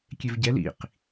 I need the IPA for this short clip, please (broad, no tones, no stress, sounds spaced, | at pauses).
kʲ e v ɟ ɛ l ḭ q